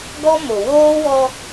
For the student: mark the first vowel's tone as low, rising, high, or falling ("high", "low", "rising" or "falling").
high